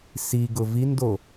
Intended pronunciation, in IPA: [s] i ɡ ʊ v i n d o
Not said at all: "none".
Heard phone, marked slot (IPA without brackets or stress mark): s